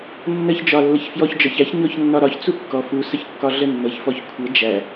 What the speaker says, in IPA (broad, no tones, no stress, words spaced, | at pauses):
nːəç d͡ʒɒlːəçfjɔç d͡ʒɒçæç ɲɔçnːɒɾɒç t͡sukːɔ fu səçkːɒɮənːɤç fɔçkʷʰɤ d͡ʒæ